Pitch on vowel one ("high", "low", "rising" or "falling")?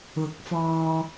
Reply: rising